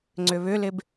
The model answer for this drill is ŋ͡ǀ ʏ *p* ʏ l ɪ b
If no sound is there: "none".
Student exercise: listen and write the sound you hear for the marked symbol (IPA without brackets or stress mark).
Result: β